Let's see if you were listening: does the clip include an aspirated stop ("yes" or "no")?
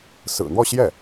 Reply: no